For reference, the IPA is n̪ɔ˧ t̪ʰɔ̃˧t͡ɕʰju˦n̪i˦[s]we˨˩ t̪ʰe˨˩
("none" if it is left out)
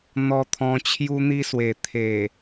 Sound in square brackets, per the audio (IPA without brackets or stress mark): s